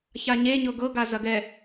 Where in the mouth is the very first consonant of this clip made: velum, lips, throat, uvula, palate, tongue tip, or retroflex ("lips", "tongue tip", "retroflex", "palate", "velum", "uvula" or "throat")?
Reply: palate